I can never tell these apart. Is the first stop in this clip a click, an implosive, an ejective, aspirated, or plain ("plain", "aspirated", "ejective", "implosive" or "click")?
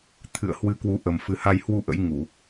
aspirated